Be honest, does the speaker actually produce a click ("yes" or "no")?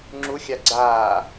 yes